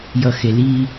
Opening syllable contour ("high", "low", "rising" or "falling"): low